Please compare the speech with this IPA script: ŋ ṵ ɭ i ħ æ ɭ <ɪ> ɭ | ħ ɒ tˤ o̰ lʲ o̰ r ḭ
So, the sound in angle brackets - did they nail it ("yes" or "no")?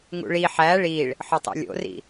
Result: no